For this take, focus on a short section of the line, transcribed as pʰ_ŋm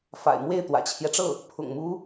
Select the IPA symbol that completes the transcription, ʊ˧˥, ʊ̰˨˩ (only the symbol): ʊ̰˨˩